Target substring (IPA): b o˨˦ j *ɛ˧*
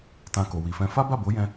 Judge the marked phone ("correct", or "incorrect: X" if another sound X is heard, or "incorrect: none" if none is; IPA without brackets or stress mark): incorrect: ɛ̃˧